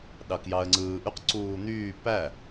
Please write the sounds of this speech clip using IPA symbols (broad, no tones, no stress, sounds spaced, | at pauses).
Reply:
ɗ ɑ k j ɑ ə̯ ŋ͡ǀ ɯː ʔ y q ǀ uː n̪ yː p æ